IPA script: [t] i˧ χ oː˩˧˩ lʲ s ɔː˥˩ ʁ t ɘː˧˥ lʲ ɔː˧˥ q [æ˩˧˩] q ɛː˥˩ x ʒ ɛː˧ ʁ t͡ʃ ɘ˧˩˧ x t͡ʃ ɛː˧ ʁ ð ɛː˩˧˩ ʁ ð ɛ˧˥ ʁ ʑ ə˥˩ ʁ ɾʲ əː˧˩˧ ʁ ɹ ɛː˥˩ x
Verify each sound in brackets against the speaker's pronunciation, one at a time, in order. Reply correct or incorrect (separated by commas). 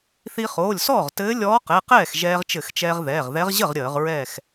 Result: incorrect, incorrect